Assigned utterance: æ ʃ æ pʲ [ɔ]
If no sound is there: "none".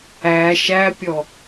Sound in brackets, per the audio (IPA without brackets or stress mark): ɔ